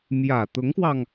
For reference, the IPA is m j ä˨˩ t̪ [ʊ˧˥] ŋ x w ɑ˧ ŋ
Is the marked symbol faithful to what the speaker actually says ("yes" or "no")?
yes